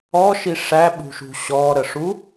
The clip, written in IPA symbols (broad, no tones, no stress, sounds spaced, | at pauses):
ɔ ʃ i ʂ æ ɓ ṳ ʃ ṳ ɕ ɔ ɾ ə ʂ u